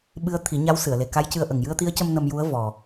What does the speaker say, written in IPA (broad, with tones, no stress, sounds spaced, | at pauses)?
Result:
ɓ ɨ˧˥ ə̯ t̪ʰ i˨˩˦ ɲ a˧˥ w s ɨ˨˩˨ ə̯ l e˨˩ k a˧˥ j c ɨ˧ ə̯ ʔ ə˨˩ ŋ j ɨ˧ ə̯ t̪ i˧˥ ə̯ c ə˧ m n ə˧ m j u˧˥ ə̯ v ɔ˨˩